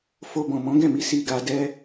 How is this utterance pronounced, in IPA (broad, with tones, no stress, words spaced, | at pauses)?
fo˧ bɔ̃˨mɔ̃˨˦ ɡɛ̃˦˨mi˧ si˧ɡa˧dɛ˦